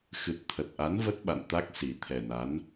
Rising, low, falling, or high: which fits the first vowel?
low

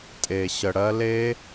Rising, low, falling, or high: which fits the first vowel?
low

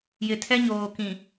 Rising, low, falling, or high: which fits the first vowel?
low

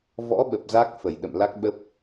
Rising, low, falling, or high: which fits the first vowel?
rising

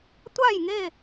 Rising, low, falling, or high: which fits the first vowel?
falling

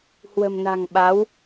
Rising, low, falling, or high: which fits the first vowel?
low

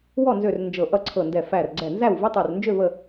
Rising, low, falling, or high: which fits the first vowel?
falling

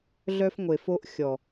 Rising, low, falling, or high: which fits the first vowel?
high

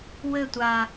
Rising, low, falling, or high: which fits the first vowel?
falling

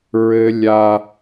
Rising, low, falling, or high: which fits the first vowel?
high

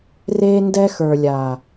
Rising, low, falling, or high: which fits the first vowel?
high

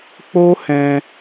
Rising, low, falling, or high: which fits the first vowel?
high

